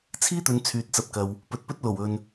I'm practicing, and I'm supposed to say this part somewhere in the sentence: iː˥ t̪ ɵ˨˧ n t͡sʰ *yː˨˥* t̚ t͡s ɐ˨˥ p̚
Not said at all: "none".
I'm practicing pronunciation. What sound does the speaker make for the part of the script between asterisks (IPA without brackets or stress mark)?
yː˨